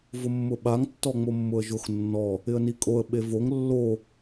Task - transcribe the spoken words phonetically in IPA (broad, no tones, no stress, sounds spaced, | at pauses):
v ʊ mː ʊ ɓ a ŋ tː ɔ ŋ͡m o mː ʊ ə̯ ʒ ʊ x nː ɔ | ɪ ə̯ n i kʼ o ə̯ ɓ e v o ŋ lː o